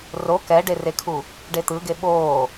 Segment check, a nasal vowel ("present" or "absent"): absent